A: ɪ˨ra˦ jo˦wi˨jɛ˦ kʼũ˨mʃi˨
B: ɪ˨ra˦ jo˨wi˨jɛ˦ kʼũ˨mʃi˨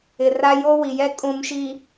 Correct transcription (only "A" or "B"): A